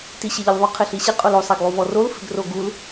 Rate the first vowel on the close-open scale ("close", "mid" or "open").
close